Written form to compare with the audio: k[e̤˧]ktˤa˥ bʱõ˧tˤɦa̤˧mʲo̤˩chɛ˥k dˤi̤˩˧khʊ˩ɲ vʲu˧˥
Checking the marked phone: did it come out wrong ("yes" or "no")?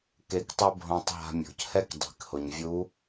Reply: yes